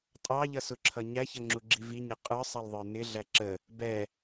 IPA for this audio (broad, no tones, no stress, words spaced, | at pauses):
tʼɑʎʌsʊǁʰʌ ɲæçʌŋ͡ǁuɡ͡ǁi viɲə qʼə˞sˤɑlðˤə˞ nɪɮæ ǁə | bɛ